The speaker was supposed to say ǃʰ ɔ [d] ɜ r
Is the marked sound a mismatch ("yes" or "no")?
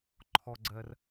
yes